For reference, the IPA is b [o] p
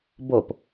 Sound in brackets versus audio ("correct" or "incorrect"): correct